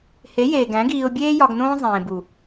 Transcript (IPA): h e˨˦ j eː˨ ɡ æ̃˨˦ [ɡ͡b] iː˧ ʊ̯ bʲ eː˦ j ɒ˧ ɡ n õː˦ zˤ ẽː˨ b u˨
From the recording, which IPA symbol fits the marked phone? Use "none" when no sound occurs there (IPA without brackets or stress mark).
ɡ